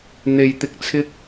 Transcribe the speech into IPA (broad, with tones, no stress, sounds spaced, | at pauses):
n̪ e˨ j t̪ ɪ˧ k̚ t͡sʰ ɪ˥ k̚